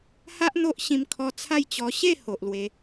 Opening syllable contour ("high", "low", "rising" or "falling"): high